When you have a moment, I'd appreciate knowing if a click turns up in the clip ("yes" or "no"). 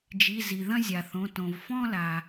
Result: no